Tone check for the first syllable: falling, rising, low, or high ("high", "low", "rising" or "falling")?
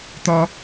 high